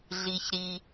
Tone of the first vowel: low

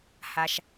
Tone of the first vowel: low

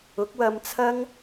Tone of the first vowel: rising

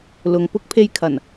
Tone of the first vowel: low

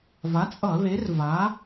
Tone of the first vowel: rising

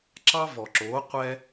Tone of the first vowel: high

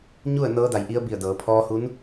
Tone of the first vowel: falling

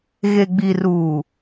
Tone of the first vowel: low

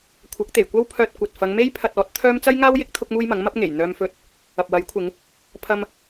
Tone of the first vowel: rising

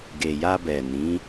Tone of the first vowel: low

